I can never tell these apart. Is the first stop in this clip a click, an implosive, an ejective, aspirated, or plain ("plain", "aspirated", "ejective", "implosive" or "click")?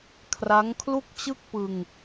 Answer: aspirated